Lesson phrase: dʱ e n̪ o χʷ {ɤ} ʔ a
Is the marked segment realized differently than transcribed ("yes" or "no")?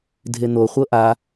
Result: no